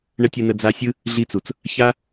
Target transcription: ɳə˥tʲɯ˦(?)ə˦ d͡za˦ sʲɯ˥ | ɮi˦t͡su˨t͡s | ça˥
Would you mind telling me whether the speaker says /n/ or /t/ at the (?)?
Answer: n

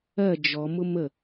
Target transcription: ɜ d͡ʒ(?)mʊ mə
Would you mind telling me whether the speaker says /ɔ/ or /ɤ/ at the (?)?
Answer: ɔ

